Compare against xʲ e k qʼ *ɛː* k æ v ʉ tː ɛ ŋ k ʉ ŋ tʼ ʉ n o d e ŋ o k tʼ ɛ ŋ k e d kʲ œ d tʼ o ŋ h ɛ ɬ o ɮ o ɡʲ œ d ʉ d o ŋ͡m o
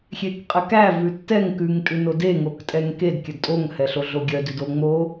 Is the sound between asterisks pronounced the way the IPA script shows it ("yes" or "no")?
no